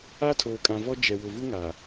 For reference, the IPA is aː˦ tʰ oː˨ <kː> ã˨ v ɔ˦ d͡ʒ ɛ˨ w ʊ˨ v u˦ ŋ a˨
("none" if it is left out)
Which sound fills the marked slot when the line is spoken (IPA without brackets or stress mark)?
kʼ